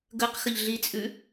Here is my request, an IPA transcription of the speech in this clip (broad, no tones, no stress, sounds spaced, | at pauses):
ɡ ə q x ə ʎ ɮ i t͡sʼ ʉ